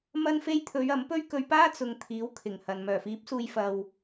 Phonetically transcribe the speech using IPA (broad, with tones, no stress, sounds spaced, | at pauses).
m ɐ˧ n f e˧ j t̪ʰ ɵ˨˧ ɥ ɐ˨˥ m p ɵ˥ ɥ k ɵ˧ ɥ p aː˥ t͡s ʊ˨ ŋ t̪ʰ iː˨˥ w kʰ ɪ˨˩ ŋ h ɐ˨ n m œː˨˩ f iː˨˥ p̚ s uː˨ j f ɐ˨ w